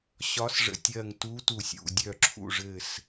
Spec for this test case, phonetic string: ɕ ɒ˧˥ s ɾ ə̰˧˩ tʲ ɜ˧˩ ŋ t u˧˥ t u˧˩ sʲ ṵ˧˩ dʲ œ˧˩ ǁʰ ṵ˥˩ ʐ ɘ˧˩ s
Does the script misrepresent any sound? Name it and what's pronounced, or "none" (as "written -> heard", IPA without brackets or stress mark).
ɾ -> ʐ